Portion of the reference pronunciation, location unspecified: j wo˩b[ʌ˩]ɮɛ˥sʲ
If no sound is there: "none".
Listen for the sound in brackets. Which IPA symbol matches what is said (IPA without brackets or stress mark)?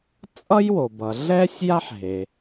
ʌ˩